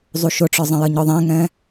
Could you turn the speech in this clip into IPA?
zˤuʃʊʈ͡ʂə˞zˤə̃ jʌɲɔðˤɛ̃ŋɛ̃

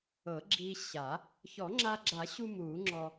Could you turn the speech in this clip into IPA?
ɤ˨˩˦ɡ͡ǁi˧ɕa˨˩˦ | çɔ˨˩˦ŋ͡ǁa˧ɡ͡ǁa˨˩˦ɕu˧ mu˨˩˦ŋ͡ǁɔ˧

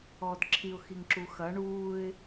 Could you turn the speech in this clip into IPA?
ɔːdǁʰiʊ̯ xiŋǁuxɐ ɳuːɪ̯

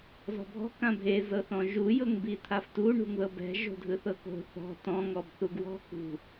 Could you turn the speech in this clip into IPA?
zɔ̤bʱɔ̤ kãbʱe zɤθɔ̃ʒu jɤŋbit̪ʰaftu ɳṳŋðɤbɛ̤ ʒo̤dʱɯθɤko̤ θɔ̤ tɔ̃ ŋɔbθuɡwɔ̤ kṳ

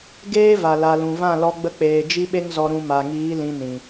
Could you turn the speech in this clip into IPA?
ɡeː˦va˨ la˨lũ˨vã˦˨lɔ˧ ɡ͡bə˧k͡peː˨ d͡ʒi˦ɓe˦ŋzɔ˧ ɾũ˧ ma˨ŋiː˨˦ lĩ˧nĩ˨

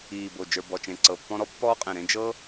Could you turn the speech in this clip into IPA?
iː˨˩bo˨˩ d͡ʒə˞˨˩bɔ˨˩t͡ʃẽ˨˩ ǀɤ˨˩pːɔ̃˦ɾɔ˦ pːɔː˦qʼẽ˨˩ɾẽ˦ d͡ʒɤ˦

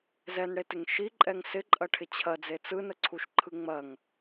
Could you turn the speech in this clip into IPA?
zɛnɽetɪŋ ʃiǃʼɛŋ sɪǃʼɐʈʰɪ t͡ɕʰɐd͡ze t͡sɯnəǀʰuʃǃʰɯ ŋ͡mɐŋ

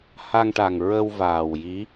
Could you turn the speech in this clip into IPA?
ha˧ŋʈa˨˩ŋ ɹə˧wvaː˨˩wji˧˥

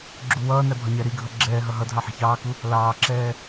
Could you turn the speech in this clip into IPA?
ɡ͡ǁuwʌːnæ bʱɒɲæɾiɡʱʌ ɡ͡ǁɛːɦʌ ɦʌ dʱɑħi̤çɑːku | lɑːǁɛː

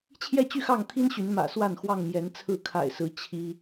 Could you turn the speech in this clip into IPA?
t͡ɕʰjɛ˥˨t͡ɕy˥˨xɑ˥˨ŋt̪ʰi˦n ɕy˨˦nmä̰˨˩swa˥˨n xwɑ˥˨ŋmjɛ˨˦nt͡sʰɹ̩˥˨ kʰa̰˨˩ɪ̯sɹ̩˨˦ t͡ɕʰi˦

